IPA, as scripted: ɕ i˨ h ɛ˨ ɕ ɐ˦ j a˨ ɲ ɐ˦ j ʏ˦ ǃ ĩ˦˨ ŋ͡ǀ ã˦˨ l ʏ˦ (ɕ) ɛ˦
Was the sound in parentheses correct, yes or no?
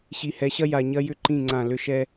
no